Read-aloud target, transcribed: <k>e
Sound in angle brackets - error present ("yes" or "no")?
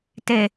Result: yes